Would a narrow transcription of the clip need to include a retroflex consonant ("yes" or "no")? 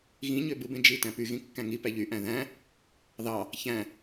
no